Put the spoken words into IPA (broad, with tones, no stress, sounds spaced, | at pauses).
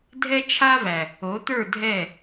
dʱ ɛ˦ t͡ʃʰ a˦ v æ˨ | o˨˦ t̪ ə˞˦˨ dʱ ɛ˦˨